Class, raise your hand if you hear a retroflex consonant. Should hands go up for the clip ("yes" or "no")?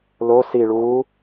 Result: yes